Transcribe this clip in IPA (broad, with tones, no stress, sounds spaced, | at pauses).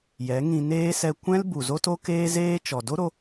j ɛ˨˦ ŋ ĩ˧ n eː˦ s ɛ˧ kʷ ɛ̃˦ l b u˨ z o˦ t o˦ k eː˦ z eː˦ t͡ʃ ɔ˨ d o˦ ɾ o˧